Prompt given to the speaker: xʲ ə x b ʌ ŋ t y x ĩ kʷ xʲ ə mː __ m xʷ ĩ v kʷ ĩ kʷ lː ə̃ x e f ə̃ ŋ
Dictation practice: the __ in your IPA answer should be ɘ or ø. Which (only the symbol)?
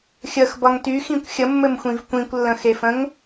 ɘ